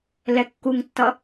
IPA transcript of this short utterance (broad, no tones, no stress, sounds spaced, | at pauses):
l ɛ kː u ŋ tː ʌ